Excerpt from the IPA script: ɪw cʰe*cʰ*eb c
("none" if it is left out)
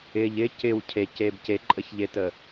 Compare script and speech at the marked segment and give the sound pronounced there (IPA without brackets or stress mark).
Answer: c